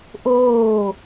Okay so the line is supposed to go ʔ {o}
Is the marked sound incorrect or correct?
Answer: incorrect